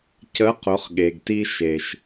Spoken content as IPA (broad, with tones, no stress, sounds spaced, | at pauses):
c ə˧˥ q ʊ˩˧ χ ɠ e˩ ɡ t i˧ ʃ e˩ ʃ